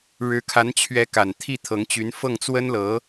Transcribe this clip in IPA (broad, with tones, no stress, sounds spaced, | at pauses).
ɻ ɻ̩˧˥ kʰ a˧˥ n t͡ɕʰ ɥ ɛ˧˥ k a˨˩ n t̪ʰ i˥˩ t̪ʰ ɤ˧˥ ŋ t͡ɕ y˧˥ n f ɤ˥˩ ŋ t͡s w ə˥ n l ɤ˧˥